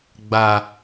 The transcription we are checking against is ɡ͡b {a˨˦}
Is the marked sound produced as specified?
no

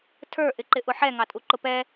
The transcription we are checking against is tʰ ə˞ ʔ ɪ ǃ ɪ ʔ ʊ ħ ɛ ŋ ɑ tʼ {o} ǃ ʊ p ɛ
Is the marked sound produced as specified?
no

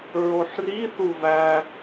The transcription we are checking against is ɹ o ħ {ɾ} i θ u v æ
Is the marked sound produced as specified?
no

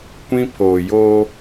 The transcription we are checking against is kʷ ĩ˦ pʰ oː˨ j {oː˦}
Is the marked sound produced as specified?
yes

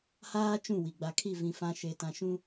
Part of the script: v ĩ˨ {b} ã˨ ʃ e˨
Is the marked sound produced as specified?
no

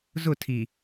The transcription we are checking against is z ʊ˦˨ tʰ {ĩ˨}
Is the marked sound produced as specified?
no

